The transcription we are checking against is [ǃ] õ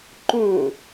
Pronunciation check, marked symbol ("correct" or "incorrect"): correct